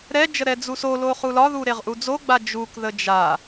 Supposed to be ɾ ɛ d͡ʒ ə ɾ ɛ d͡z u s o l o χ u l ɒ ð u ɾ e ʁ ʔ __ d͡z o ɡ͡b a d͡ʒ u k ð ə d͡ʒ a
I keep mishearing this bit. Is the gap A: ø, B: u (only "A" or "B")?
B